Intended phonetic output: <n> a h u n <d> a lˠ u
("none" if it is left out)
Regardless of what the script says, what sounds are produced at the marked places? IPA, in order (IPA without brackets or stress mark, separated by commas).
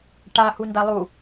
ʈ, d